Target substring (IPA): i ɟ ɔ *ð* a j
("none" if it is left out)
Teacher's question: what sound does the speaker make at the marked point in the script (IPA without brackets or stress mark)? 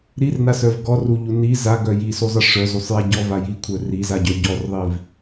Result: v